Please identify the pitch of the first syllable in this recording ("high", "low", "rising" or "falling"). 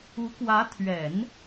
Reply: rising